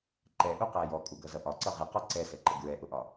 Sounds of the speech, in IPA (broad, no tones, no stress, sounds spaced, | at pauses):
ǃ ɛ ʔ u q æ j ɔ kʼ u ɡ ʌ z ʌ ʔ ɒ ǀ ʌ ʁ ɪ q ɔ ǀ ɛ s ɛ ǃ ə ɡ ɹ ɛ ʔ ʊ ʔ ɒ